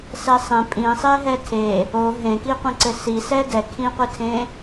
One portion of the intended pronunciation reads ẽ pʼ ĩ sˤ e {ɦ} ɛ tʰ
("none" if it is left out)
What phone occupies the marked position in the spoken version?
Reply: ɦ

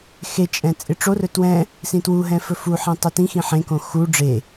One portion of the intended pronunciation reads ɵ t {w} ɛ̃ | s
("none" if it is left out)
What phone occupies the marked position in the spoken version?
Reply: w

